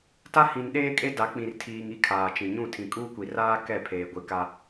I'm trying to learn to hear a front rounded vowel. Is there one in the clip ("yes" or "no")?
no